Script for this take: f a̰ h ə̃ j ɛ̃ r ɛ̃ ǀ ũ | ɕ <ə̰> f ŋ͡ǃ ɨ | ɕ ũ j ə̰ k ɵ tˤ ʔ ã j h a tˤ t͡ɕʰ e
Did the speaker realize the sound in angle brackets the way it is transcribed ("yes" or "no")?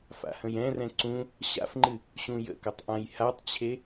no